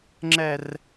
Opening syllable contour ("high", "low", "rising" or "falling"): high